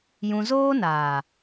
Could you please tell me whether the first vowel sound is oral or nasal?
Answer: nasal